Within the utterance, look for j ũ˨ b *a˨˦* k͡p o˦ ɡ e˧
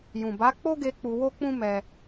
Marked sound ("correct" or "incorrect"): correct